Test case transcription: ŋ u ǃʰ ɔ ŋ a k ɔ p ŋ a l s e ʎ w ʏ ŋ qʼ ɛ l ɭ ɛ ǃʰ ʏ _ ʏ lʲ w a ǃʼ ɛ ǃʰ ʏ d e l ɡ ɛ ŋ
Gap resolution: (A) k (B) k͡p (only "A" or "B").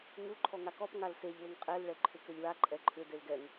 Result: A